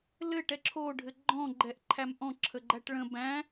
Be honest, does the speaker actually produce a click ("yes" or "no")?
yes